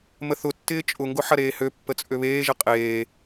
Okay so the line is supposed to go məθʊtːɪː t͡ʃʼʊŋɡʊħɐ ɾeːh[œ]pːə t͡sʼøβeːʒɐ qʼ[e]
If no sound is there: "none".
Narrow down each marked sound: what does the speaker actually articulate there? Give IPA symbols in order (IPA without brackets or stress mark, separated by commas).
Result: ø, eː